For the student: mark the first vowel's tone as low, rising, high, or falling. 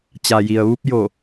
low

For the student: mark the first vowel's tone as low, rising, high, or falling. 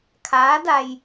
rising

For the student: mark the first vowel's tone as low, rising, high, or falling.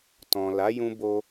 low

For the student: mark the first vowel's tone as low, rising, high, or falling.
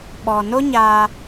low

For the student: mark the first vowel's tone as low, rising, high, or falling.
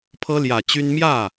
high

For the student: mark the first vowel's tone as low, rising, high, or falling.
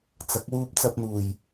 rising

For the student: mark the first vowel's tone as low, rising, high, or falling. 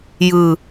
low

